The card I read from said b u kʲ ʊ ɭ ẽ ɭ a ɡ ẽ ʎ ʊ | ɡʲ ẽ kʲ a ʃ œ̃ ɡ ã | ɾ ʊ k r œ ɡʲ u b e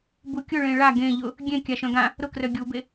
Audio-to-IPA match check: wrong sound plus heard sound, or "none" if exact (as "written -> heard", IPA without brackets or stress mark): none